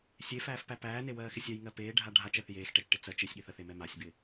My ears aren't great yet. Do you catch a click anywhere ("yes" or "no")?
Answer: no